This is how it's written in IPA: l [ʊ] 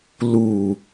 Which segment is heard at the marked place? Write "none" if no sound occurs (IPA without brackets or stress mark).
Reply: u